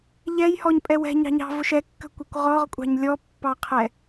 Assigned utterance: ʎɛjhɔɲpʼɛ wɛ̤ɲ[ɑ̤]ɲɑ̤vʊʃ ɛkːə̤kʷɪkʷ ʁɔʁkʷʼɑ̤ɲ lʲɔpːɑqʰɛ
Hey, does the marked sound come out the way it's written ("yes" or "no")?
yes